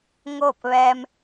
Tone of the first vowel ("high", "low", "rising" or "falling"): falling